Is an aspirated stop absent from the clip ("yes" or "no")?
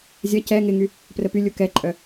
yes